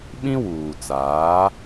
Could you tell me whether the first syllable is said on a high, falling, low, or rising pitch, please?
high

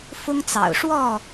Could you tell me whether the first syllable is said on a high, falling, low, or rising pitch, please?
high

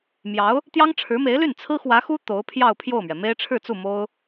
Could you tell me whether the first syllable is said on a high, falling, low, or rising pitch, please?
rising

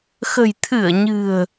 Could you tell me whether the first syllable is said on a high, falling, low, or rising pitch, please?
low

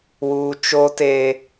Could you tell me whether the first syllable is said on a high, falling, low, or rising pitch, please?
high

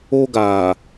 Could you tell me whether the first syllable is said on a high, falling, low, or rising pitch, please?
high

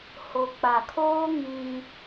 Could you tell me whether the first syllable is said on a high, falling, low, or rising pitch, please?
low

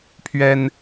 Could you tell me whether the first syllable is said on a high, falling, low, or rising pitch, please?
high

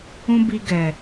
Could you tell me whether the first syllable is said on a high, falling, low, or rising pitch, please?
high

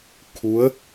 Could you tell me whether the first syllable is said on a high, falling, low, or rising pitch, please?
rising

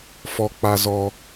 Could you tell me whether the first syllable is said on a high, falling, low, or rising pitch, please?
high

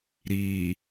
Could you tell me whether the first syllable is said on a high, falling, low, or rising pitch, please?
low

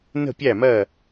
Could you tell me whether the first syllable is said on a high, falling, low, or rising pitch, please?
falling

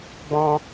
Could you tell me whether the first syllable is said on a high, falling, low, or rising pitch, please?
high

